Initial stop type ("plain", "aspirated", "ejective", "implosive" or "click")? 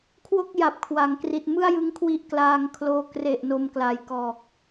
aspirated